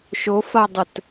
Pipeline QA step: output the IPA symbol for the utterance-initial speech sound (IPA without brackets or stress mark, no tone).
ʃ